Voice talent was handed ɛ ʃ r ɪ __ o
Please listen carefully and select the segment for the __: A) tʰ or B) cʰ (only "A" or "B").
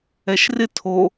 A